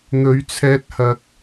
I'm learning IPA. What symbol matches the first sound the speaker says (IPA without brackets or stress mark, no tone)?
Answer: n̪